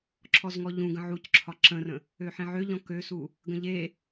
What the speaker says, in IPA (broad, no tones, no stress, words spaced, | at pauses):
ǁʰɔzŋɔʎũ ɡə̃ʕucǁʰɒ ǁə̃rə̃ | øħẽʕøʎɔ̃ køsu | ɡə̃ʎe